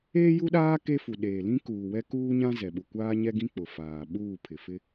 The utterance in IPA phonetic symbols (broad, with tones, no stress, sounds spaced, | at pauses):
eː˦ j u˦ ɗ aː˦ k e˦ f u˨ ɗ eː˨ l ĩ˦ k uː˨ w ɛ˦ k uː˦ ɲ ã˦ z ɛ˨ ɓ u˨ kʷ aː˦ ɲ ɛ˦ ɡ ĩ˦ k͡p ʊ˨ f aː˨ ɓ uː˦˨ pʰ ɪ˨ f ɪ˦